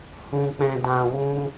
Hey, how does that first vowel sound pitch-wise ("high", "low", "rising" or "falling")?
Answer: low